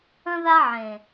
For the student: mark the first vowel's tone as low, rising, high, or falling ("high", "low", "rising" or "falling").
high